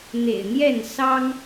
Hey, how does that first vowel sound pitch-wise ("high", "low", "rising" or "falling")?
low